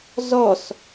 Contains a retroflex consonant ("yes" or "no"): no